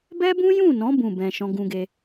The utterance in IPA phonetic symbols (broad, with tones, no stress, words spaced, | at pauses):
bɛ˦bũ˦jũ˦˨nɔ̃˨˦ bũ˦˨bɛ̃˧ ʃɔ̃˦ɡũ˦ɡe˦